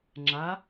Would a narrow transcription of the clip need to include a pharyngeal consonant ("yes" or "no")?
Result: no